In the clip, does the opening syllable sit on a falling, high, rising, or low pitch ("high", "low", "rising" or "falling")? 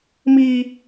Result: high